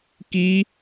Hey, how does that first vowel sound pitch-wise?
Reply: high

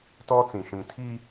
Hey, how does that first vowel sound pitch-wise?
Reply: high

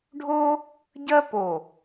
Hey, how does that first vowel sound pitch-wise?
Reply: high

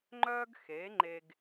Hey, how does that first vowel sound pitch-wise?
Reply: high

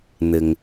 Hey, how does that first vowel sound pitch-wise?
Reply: low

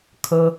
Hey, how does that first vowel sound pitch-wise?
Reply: high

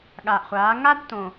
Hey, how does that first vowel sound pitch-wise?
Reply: low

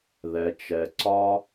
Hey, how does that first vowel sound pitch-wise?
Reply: low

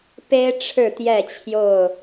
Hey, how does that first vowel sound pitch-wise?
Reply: high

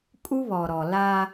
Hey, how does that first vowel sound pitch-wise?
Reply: high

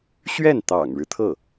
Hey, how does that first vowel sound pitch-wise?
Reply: falling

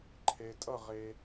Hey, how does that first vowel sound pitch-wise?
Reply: low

